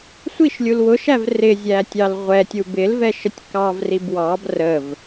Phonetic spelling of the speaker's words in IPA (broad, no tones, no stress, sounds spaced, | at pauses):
sʷ i ʃ lʲ u l w ʊ ʃ æ v r ɪ zʲ æ tʲ ɑ l ʁʷ ɛ tʲ u b ɪ l v ɛ ʃ ə tʲ k ɑ v r i b w ɑ b r ə v